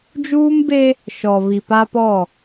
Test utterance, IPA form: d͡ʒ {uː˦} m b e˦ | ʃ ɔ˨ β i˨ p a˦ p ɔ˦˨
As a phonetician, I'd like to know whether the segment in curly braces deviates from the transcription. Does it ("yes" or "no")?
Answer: no